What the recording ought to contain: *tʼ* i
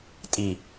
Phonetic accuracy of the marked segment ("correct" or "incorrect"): correct